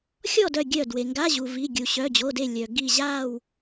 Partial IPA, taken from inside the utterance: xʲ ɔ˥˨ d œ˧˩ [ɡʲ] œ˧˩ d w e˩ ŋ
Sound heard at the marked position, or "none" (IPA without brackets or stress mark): ɡʲ